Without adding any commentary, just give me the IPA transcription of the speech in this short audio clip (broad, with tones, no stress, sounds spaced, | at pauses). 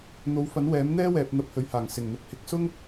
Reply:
n̪ o˨˥ w f ɐ˨˥ n w ɛː˨˥ m n̪ ɛː˥ w ɛː˨ p̚ n̪ ɐ˧ p̚ h ɵ˨ ɥ h aː˨˩ ŋ s ɪ˨˩ ŋ n̪ ʊ˨ k̚ h ɪ˨˥ k̚ s ʊ˥ ŋ